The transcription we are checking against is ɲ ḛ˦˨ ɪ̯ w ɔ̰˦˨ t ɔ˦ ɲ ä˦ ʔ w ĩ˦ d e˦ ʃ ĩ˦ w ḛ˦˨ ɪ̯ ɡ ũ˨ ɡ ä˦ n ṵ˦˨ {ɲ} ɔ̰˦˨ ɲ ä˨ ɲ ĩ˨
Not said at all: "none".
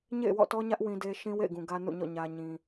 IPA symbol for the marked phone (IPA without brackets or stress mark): ɲ